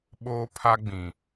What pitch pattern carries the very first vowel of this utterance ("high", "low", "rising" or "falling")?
high